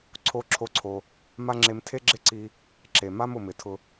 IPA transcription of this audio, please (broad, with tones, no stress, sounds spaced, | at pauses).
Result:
ǀʰ o˧ ǁʰ o˧ ǀʰ o˩ | m a˥ ŋ͡ǁ e˧ m tʰ e˥ ɡ͡ǁ ɪ˥ ǀ i˧ | ǁ e˩ m a˥ m ʊ˩ m ɪ˩ tʰ ʊ˧